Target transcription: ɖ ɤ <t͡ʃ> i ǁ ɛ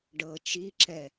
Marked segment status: correct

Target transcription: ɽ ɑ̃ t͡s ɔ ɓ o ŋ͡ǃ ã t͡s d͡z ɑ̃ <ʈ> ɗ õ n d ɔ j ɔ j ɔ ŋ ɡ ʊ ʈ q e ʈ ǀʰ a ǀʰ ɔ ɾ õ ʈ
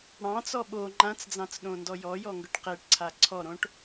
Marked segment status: incorrect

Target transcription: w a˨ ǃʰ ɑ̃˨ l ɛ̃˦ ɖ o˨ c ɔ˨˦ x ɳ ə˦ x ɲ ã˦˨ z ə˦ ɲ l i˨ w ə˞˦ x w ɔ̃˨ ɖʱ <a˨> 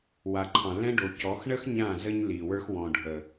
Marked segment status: incorrect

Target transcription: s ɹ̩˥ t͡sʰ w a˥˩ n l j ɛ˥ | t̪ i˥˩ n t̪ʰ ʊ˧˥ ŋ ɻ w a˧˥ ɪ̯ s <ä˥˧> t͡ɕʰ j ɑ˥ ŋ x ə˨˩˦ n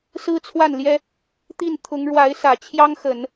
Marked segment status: incorrect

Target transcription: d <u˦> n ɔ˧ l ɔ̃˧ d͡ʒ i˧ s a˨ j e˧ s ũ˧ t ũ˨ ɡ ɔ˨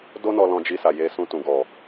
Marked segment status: incorrect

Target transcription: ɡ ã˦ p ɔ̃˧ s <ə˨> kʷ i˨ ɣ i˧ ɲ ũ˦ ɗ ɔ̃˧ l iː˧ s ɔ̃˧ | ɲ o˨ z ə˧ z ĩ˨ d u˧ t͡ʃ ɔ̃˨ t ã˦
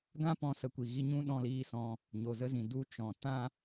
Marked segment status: incorrect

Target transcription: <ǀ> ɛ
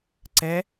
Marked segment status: correct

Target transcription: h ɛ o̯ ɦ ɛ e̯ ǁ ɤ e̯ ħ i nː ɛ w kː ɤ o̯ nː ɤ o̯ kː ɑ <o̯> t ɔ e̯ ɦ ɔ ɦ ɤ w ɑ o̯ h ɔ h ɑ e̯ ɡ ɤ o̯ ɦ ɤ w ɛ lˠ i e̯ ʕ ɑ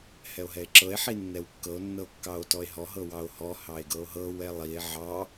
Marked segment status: correct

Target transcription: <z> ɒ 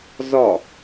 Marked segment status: correct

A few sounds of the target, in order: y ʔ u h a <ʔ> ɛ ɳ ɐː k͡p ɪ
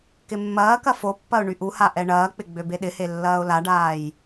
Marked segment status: correct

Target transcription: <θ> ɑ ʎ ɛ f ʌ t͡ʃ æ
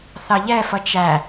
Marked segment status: correct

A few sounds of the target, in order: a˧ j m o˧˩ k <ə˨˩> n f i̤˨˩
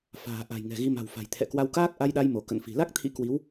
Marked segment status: incorrect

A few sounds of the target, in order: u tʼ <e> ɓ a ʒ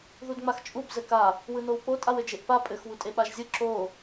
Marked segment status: correct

